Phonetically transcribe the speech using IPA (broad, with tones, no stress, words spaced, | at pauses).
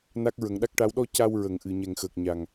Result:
na˦˥k̚ ɹə˨˩˦ŋɗa˦˥k̚ʈa˧˥w ɗɔ˧ ca˧wɹə˨˩ŋ ʔɨ˨˩˨ɲɛ˨˩ŋxəː˨˩k̚ɲa˨˩ŋ